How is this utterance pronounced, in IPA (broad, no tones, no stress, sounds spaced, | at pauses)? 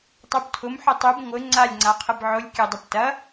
tˤ u b tʰ ʊ m ħ ʊ tˤ u b ŋʷ ɘ ŋ͡ǀ a lʲ ŋ͡ǀ a qʰ ɘ b ʕ ʊ lʲ kʲ ɘ dˤ u p t ɐ